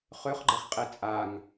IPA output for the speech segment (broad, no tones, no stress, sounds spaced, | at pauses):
χ ø χ ɡ͡ǃ ɛ χ qʼ e t͡sʼ a ŋ